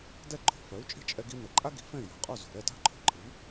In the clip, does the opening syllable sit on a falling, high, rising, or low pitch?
falling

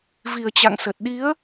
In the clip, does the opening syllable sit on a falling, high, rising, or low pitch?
low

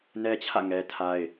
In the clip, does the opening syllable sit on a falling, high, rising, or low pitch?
high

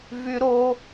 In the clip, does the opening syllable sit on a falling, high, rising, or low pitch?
high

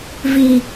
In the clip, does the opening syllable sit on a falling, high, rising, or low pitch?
low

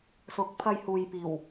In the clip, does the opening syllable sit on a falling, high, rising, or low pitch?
rising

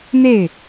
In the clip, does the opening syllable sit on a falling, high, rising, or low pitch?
falling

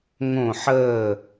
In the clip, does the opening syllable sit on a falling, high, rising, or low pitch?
falling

